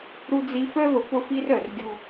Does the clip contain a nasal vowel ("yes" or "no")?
no